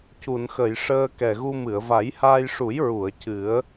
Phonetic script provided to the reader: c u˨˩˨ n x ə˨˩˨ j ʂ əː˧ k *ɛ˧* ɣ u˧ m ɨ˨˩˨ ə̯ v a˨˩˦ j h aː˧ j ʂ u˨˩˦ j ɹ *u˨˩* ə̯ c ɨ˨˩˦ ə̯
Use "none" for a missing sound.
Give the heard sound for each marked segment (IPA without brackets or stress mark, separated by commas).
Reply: ɛ˨˩, u˨˩˨